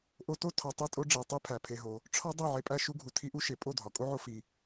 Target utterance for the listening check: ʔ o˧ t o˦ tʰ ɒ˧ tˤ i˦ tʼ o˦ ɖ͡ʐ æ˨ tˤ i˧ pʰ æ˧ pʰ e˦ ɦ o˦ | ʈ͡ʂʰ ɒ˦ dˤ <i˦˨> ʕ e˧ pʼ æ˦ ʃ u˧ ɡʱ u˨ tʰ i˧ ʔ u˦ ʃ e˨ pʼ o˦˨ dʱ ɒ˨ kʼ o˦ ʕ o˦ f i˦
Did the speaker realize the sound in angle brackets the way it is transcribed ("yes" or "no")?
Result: yes